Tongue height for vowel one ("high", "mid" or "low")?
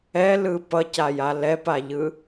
mid